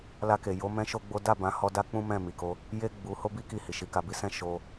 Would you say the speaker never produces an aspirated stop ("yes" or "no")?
yes